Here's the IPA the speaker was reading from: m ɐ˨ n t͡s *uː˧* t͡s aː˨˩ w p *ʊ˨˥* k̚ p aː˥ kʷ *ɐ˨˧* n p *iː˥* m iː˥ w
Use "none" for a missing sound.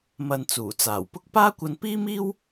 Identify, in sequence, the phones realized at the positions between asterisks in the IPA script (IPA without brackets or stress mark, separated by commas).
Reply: uː˨˩, ʊ˥, ɐ˧, iː˥